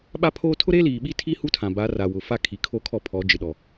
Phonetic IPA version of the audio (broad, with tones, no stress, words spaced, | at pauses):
ɓa˦pʰoː˦ tʰʊ˦ɾeː˦ liː˨ɓi˦tʰi˦ hu˦tʰã˨ba˨˦ ra˨wʊ˨fa˦ kʰi˨kʰo˦kʰɔ˦ pʰɔ˨˦d͡ʒɪ˨ ɗɔ˨